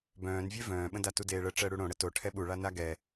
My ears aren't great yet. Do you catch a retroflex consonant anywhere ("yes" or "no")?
yes